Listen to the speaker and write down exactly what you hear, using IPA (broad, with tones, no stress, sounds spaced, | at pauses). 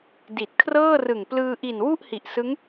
d i˨˩ t̚ kʰ r ɤː˥˩ r ɯ˨˩ ŋ p l ɯː˧ ʔ i˨˩ n w u˥˩ ʔ h i˨˩ ʔ s ɯ˦˥ ŋ